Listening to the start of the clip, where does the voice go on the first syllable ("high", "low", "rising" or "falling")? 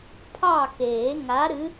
falling